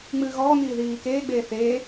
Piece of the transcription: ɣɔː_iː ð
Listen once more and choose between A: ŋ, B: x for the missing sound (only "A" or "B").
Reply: A